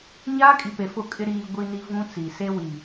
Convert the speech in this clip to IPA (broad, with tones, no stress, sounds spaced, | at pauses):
ɲ aː˦ kʼ i˨ p e˨ f ʊ˦˨ kʼ ɪ˦ ɾ iː˦ ɡʷ i˦ n i˦ v ũ˦ t͡s i˨ s e˦ w i˨